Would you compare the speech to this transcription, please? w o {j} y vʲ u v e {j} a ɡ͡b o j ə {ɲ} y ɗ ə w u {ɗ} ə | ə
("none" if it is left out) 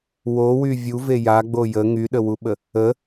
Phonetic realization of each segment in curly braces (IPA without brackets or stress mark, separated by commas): w, j, ŋ, ɓ